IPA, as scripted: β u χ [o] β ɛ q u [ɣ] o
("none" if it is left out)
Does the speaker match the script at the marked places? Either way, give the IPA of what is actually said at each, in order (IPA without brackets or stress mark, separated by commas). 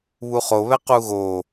o, ɣ